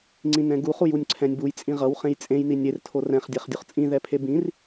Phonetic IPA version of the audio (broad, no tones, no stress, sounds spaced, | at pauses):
ŋ͡ǀ ĩ n ɛ̃ ɡ u χ u j u nʲ ǀʰ ɛ̃ nʲ b u j t͡sʼ ĩ ʁ ʌ w χ ẽ j t͡sʼ ẽ j n i nʲ e r tʰ o r ɛ̃ χ dʲ ɛ χ dʲ u χ t͡sʼ ĩ ð ɛ pʰ e b ĩ r